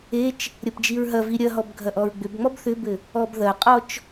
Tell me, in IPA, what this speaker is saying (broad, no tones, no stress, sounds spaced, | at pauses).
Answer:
e t͡ʃ | ɾʲ ɐ p d͡ʒ i ɹ ɦ ɐ v i ɾʲ ɐ ɦ ɔ b ɡʱ ɐ ʔ ɔ ɹ ɡ͡b ʏ b ŋ͡m ɔ b θ ʏ b ɘ | ɔ b ð ɐ qʼ ɔ t͡ʃ